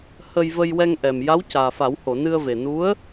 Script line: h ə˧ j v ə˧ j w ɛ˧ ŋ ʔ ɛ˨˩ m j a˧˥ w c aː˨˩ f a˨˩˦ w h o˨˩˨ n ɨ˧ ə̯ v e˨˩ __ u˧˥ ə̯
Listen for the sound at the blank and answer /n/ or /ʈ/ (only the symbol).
n